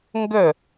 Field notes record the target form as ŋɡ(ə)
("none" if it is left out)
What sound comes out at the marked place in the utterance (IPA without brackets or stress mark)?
ə